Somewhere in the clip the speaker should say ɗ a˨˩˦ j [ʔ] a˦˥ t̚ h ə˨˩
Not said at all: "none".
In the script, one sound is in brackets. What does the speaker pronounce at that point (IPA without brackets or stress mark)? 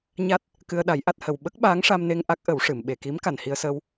ʔ